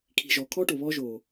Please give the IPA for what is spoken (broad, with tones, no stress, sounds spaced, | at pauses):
kʰ i̤˨ ʒ ɔ˨ kʰ ɔ˦ ʈ o˨ β ɔ˦ ʒ o˨